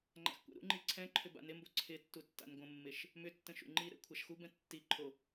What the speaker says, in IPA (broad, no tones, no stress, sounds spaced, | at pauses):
ŋ͡ǃ a̰ x kʷ ɛ̰ ɾ ṵ ŋ͡ǃ i ǀʰ ɛ̃ ǃʰ ʏ b a̰ n ɪ m b o ǀʰ ɪ tː u tː a̰ n ɡʷ ə̃ mː ɪ ʃ | m ʏ tː ə̃ ʃ ṵ ŋ͡ǃ i ɾ ɛ̰ kʷʰ a ʃ x u b ɛ̃ tː i ǃʰ o